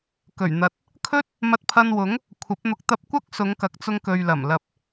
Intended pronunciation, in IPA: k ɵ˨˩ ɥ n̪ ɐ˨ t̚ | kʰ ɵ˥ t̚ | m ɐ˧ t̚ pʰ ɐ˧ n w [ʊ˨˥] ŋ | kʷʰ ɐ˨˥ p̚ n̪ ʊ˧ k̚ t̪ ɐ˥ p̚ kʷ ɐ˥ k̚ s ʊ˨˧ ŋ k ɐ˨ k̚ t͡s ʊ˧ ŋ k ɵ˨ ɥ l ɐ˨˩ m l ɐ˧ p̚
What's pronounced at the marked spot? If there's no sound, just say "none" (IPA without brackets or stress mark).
ʊ˨˥